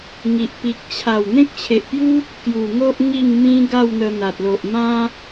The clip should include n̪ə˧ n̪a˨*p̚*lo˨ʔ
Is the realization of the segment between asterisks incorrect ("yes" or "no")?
yes